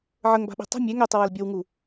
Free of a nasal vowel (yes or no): yes